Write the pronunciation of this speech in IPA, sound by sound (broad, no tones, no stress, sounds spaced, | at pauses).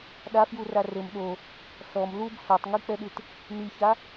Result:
ɗ a f j u r a r ɘ m ɗ o | ɬ ɔ m l u b ɬ ɔ tˤ ŋ i k͡p ɛ ɗ ɨ t | n̪ i ç a